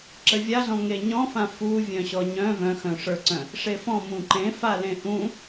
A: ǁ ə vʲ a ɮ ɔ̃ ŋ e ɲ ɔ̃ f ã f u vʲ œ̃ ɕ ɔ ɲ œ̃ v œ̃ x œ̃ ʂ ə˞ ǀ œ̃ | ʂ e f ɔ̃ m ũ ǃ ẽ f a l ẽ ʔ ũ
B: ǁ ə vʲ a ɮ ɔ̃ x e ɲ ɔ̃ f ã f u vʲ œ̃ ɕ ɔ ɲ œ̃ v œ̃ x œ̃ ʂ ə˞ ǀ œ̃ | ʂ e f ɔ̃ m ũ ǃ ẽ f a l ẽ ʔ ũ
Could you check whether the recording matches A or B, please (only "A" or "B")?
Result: A